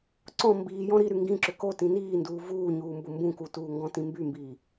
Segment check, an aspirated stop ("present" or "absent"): absent